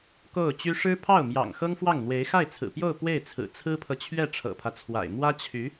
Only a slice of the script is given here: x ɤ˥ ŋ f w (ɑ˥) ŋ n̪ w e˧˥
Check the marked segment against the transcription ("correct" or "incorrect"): incorrect